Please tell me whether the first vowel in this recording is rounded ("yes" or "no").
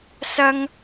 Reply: no